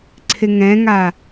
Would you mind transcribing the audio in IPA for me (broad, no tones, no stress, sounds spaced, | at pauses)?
ǀʰ ɪ ŋ ɛ̃ ŋ a